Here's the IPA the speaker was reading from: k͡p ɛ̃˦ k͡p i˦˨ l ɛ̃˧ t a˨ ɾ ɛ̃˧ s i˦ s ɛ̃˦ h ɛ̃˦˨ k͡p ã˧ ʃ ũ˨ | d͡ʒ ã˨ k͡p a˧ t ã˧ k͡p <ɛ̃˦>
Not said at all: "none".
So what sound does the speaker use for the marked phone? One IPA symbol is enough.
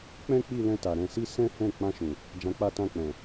ɛ̃˨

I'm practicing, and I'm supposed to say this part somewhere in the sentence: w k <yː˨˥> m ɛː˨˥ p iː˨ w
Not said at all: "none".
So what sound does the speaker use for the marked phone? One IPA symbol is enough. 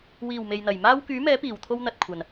yː˨˥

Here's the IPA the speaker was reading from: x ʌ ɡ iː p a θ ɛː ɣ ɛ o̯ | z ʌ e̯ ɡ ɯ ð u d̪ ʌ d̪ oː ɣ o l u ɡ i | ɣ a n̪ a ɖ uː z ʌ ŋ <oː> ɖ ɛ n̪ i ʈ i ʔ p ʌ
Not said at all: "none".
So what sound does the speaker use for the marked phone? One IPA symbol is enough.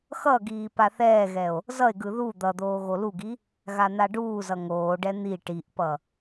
oː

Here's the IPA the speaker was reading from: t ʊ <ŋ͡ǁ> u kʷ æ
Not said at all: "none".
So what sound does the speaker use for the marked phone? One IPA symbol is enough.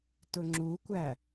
ŋ͡ǁ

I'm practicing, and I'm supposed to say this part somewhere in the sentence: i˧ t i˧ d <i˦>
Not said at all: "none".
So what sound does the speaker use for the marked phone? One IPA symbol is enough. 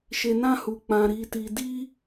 i˦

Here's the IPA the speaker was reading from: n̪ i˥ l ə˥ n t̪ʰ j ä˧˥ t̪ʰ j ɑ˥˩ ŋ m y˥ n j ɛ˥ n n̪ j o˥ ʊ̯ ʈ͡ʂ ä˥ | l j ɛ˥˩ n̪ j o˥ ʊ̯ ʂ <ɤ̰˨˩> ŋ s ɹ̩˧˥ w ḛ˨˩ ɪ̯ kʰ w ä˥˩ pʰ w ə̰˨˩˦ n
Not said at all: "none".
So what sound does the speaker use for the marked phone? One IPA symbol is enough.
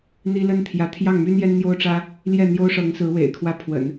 ɤ˧˥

